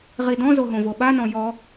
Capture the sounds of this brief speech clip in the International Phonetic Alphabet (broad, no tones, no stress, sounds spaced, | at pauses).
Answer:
ʁ i d ɔ̃ z o ɦ õ v o ɓ a n ɔ̃ j ɔ